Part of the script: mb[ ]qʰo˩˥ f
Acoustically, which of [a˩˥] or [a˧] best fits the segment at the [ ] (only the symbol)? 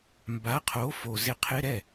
a˩˥